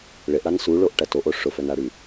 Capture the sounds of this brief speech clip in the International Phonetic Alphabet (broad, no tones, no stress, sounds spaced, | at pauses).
ɭ ɪ ʔ ɽ a n s u ɭ o ʔ ʈ ɐ t o ʔ o ʂ ʊ f œ n a ɽ y